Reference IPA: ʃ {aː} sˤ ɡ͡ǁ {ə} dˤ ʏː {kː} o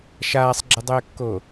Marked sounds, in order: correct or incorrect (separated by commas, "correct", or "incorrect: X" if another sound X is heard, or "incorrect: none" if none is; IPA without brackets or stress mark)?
correct, correct, correct